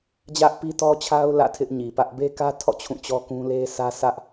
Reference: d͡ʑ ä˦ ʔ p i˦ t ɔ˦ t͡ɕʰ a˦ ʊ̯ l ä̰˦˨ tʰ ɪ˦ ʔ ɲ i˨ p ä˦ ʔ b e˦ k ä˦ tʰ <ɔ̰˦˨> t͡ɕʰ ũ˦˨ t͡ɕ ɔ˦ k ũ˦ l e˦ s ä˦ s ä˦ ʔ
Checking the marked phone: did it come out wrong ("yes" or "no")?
no